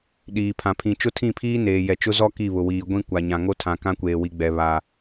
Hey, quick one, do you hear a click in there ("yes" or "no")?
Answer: no